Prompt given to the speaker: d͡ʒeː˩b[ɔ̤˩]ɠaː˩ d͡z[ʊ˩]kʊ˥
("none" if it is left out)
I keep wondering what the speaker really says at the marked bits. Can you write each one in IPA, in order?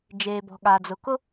ɔ̤˩, ʊ˩

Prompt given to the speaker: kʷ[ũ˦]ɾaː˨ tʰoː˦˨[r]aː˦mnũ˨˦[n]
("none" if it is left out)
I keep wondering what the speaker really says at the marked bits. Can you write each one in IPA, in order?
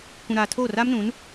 ũ˨, r, n

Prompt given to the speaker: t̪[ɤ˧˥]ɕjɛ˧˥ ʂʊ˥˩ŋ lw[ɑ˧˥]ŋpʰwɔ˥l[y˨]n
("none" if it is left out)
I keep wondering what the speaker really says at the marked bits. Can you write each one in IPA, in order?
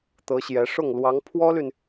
ɤ˧˥, ɑ˧˥, y˨

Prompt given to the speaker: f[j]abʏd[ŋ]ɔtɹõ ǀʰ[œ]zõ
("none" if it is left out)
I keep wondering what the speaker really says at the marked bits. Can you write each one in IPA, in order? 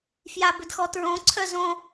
j, x, œ

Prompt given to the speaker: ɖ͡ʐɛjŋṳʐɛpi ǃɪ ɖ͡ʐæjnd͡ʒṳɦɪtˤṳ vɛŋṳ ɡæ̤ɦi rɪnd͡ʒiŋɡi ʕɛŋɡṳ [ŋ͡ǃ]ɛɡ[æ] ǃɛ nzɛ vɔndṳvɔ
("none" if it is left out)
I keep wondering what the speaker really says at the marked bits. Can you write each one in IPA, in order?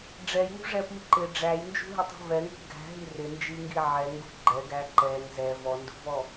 ɡ͡ǃ, æ

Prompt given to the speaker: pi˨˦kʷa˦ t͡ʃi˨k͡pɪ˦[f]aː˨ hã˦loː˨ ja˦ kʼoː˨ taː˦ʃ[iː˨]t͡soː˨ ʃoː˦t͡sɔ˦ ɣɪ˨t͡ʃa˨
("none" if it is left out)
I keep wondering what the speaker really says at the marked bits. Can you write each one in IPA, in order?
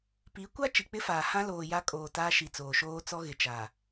f, i˨

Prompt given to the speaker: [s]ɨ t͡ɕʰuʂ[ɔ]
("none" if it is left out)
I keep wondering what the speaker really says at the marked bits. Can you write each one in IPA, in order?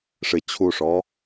ʂ, ɔ

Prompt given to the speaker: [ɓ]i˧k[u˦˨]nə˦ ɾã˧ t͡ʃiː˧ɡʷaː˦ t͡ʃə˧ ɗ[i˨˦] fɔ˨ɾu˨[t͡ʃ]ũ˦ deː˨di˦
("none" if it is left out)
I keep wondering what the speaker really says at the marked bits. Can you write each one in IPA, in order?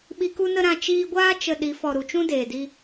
ɓ, u˦, i˨˦, t͡ʃ

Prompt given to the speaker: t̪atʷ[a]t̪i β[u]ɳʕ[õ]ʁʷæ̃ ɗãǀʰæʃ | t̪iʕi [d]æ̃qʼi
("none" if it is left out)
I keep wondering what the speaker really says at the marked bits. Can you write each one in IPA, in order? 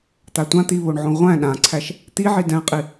ã, o, õ, d

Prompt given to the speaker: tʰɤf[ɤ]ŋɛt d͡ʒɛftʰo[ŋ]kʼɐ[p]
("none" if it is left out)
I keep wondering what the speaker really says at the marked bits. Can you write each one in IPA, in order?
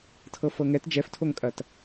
ɤ, ŋ, t

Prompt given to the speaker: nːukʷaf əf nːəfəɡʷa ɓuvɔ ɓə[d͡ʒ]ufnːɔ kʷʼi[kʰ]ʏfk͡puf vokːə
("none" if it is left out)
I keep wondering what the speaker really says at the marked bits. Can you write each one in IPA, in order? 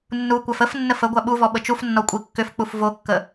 t͡ʃ, kː

